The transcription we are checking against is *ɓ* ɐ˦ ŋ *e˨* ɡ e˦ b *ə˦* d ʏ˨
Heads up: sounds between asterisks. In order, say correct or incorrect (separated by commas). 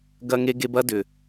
incorrect, incorrect, incorrect